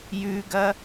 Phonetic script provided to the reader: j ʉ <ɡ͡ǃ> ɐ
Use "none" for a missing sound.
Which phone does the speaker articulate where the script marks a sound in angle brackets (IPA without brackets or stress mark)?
ɡ